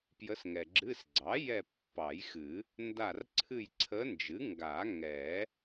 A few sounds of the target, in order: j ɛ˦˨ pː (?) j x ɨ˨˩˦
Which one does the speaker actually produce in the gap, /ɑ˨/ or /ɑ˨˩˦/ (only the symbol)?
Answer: ɑ˨˩˦